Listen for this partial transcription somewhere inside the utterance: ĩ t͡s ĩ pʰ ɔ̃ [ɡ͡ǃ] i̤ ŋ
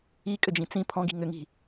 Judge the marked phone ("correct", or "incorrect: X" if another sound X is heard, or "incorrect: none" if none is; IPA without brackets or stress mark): incorrect: ɡ